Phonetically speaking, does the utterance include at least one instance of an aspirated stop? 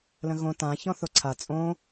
yes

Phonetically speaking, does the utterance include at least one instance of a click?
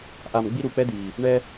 no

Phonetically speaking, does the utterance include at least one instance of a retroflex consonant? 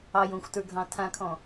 no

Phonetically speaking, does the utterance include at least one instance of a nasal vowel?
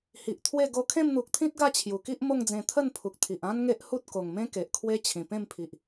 yes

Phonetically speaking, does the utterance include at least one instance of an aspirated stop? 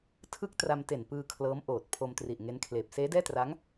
yes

